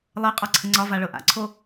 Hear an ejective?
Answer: yes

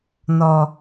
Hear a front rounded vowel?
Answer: no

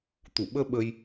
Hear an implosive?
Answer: yes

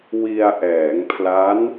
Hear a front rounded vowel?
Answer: no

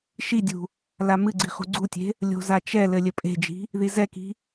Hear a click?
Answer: yes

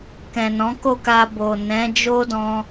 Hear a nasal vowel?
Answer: yes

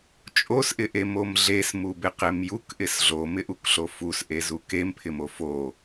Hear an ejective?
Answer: yes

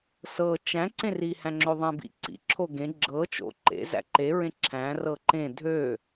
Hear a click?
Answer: yes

